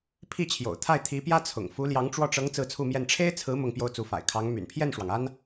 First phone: pʰ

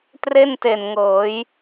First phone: t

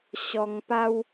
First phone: ɕ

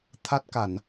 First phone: t̪ʰ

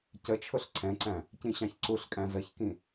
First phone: c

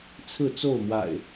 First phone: t͡sʰ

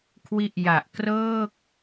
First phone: kʰ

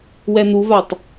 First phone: w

